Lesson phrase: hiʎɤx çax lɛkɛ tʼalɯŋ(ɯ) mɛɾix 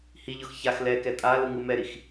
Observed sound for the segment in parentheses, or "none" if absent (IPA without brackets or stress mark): ɯ